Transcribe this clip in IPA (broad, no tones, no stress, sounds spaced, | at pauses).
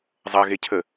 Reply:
zˤ ɐ ɣ e cʰ ə